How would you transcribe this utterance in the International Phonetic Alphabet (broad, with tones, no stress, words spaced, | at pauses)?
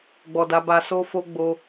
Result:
ɡ͡bɔ˨da˨˦ba˧ so˧fo˧ ɡ͡bo˧